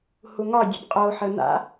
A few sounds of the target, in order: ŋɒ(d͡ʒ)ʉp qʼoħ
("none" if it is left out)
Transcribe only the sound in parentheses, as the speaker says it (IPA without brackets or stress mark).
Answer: dʲ